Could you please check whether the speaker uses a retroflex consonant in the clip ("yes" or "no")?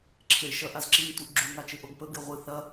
no